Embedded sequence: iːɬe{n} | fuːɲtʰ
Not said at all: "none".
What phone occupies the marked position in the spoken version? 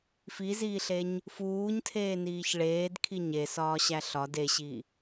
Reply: ɲ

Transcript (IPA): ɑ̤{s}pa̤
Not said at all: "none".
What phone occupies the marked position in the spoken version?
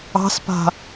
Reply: s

